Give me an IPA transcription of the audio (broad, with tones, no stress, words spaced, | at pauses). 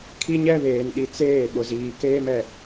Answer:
kʰi˦ɲɛ˦βeː˨nɗi˨ t͡seː˦˨ ɓʊ˨ziː˨keː˦m ɛ˨